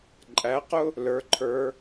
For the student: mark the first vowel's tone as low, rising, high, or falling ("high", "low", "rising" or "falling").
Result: rising